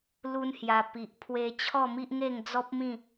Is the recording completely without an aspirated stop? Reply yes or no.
no